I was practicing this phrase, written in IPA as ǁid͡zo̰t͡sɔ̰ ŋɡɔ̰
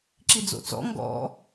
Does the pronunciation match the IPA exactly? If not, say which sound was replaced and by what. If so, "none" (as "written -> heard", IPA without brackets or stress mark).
none